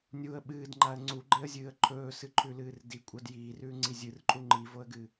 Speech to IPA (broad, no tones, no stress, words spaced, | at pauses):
nʲuə̯ ɓɨːdŋ͡ǃaə̯ ŋ͡ǀuɡ͡ǃeə̯zʲɨːə̯ ǃʰɵːsɨǃʰʉlɨːr dikʷʼɐd jiːrʉːŋ͡ǀi zʲɨrǃʼu ŋ͡ǃivoə̯ɡɨ